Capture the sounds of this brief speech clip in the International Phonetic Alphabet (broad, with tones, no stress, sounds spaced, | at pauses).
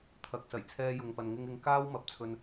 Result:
t̪ʰ ɐ˨ k̚ s ɐ˨˩ j t͡sʰ ɛː˧ j ʊ˨ ŋ p ɐ˨ n ŋ ɪ˧ ŋ ɪ˧ ŋ k aː˥ w m ɐ˨˥ p̚ t͡sʰ ɵ˧ n